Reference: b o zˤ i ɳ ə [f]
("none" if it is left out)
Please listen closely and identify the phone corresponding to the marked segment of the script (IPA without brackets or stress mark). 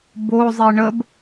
b